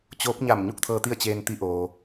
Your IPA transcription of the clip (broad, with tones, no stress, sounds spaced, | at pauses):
t͡ɕ oː˧˥ p̚ ɲ a˧˩ m ɲ u˥˨ k̚ t̪ʰ ɤː˧ t̪ i˥˨ ə̯ t͡ɕ eː˧ n t̪ i˧˥ ʔ oː˩